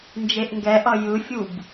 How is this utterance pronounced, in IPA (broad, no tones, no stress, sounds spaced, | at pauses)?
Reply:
n d͡ʒ e ʔ ŋ ɡ ɛ ʔ ʌ j ɯ fʲ u b